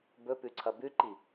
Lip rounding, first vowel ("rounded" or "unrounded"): rounded